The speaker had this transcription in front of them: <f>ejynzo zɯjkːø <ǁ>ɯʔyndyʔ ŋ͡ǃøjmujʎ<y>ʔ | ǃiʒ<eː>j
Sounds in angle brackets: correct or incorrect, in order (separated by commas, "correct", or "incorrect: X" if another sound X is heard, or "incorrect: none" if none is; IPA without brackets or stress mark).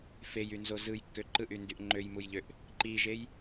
correct, incorrect: ǃ, incorrect: ø, incorrect: e